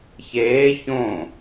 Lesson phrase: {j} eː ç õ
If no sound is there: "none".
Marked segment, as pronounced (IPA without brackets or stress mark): ç